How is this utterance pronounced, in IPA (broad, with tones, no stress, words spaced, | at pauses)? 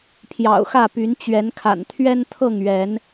pʰjɑ̰˨˩ʊ̯xä˥˨py˨˦n t͡ɕɥɛ˨˦nkʰa̰˨˩n t̪ʰɥɛ˦nt̪ʰɤ˥˨ŋɥɛ˨˦n